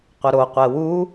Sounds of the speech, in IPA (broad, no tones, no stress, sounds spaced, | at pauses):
qʷ ə ɾ o qʷ ɛ w u